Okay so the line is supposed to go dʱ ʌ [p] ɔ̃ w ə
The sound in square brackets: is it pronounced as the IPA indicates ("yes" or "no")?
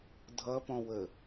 yes